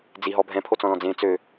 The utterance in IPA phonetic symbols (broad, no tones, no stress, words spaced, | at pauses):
d͡ziɦɔ bʱɛ̃pʰot͡sɔ̃lɔ̃ d͡zẽ t͡sø